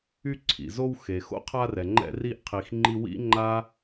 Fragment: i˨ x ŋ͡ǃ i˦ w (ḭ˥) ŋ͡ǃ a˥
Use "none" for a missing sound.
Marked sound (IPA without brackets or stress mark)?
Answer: ḭ˥